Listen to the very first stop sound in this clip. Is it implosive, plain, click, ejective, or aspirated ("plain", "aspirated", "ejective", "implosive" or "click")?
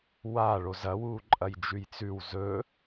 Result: click